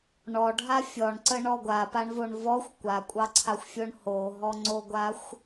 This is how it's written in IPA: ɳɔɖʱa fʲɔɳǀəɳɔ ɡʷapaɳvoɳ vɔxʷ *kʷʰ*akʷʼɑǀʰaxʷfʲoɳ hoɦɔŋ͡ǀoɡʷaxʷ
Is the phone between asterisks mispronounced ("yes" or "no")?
yes